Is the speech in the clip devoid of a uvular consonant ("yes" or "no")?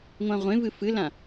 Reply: no